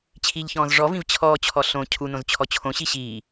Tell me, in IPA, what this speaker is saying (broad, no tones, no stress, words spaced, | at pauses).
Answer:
t͡ɕʰiʎçɔ̃ːz ʐɔvĩv t͡ɕʰɔːt͡ɕʰɔ ɬõ cʰunõz t͡ɕʰɔt͡ɕʰõɕi ɕiː